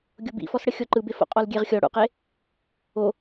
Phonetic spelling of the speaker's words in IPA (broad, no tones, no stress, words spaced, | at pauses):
ɡʲobḭfɔsɽə xʲɔǃɯbefo̰ qʼɔlɡʲeʁxʲɔ ɽṵqe | o